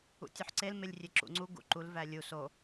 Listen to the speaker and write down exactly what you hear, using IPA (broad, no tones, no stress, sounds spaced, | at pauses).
ṵ tʲ u ħ ǀ e l m e lʲ rʲ e ǁ ṵ ŋ͡ǀ u ɡ ṵ ǃ u l v æ lʲ u s o